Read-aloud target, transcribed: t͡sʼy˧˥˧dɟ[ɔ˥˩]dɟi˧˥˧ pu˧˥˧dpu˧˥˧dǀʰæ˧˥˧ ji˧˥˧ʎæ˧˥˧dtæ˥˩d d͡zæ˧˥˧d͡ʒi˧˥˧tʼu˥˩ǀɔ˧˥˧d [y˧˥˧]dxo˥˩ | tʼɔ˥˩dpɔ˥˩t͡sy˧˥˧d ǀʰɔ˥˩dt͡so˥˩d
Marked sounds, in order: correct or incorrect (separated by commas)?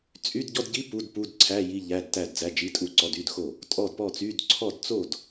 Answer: incorrect, correct